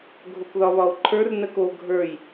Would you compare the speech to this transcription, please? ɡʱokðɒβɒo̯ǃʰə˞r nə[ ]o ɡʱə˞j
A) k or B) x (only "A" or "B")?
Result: A